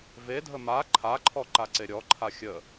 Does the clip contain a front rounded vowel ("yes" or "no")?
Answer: no